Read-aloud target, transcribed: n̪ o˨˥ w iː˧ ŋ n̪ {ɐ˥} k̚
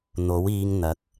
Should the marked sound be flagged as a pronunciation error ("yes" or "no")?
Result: yes